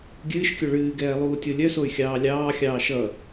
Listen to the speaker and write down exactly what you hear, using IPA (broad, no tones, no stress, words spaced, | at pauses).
ɡʲɨːʃkʲœ ɭɨːɡɛː lˠuːtʲolʲœsoy̯ xʲɑːlʲɑːxʲɑː ʃʌ